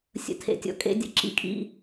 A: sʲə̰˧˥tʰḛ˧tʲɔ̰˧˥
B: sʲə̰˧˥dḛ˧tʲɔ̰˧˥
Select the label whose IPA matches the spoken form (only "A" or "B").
A